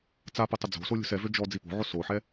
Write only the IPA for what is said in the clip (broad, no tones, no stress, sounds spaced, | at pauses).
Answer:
t͡s a p ə tˤ ə d͡z o̤ s o lʲ o̤ s ɛ v ø d͡ʒ ɔ d͡z i p o̤ ʕ o s o ħ ɛ